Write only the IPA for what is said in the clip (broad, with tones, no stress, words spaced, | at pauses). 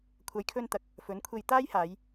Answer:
kʷʰɐ˨jkʰɵ˧nt̪ɐ˨˥k̚ | fɵ˨˥nkʷʰe˧j t̪aː˥jhaː˨˧j